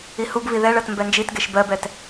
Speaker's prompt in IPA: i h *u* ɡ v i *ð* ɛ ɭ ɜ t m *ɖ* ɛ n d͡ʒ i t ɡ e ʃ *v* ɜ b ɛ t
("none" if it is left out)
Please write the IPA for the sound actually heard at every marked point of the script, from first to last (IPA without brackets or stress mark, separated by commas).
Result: u, ð, b, b